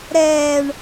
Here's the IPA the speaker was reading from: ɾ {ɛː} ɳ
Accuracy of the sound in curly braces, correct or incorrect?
correct